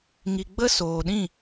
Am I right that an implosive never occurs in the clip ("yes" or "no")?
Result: no